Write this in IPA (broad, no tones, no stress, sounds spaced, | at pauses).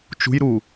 t͡ʃ ṳ j ɾ u